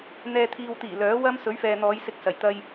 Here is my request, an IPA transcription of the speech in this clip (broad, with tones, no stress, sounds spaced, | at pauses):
n̪ ɛː˨ t̪ʰ iː˨ w t̪ iː˨˩ l œː˨˥ w ɐ˥ m s ɵ˨˥ ɥ f ɛː˨ n̪ ɔː˨˧ j s ɪ˧ k̚ s ɐ˨˩ j t̪ ɐ˧ j